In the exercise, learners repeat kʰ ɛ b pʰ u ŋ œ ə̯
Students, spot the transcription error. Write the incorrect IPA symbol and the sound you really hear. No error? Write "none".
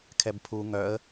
none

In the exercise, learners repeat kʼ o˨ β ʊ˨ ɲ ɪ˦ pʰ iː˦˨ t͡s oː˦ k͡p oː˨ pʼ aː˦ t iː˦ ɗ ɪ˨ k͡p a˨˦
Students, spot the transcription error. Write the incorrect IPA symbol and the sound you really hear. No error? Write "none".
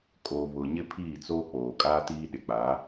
pʼ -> kʼ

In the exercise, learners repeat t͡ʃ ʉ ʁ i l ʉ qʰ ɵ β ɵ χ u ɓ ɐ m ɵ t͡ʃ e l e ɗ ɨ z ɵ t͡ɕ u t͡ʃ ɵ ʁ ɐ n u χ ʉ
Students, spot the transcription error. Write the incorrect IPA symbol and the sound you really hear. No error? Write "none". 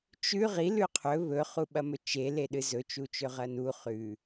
t͡ɕ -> t͡ʃ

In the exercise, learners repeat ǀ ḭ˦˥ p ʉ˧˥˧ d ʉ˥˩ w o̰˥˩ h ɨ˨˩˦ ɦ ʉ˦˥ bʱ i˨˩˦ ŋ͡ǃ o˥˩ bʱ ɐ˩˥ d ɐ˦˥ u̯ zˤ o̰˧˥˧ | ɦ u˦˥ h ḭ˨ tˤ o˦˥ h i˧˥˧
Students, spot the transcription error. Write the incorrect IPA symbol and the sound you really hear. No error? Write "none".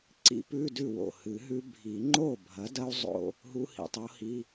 none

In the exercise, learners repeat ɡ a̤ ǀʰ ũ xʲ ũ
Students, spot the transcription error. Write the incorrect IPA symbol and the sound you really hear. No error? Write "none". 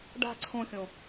ɡ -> ɖ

